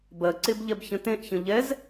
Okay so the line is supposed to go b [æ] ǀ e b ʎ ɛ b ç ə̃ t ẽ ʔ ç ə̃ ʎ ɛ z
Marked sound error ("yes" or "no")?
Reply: yes